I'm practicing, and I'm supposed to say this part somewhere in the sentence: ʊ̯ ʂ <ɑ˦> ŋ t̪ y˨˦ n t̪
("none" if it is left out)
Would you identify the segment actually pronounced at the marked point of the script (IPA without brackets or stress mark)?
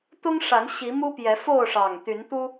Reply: ɑ˨˩